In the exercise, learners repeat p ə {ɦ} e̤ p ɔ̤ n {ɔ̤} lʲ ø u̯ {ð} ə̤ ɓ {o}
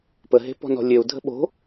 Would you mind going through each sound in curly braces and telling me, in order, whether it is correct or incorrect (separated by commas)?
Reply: correct, correct, incorrect, incorrect